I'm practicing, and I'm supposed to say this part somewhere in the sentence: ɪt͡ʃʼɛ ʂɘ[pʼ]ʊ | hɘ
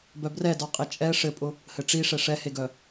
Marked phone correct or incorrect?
correct